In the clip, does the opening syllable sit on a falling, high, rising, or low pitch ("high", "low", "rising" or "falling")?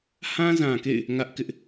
high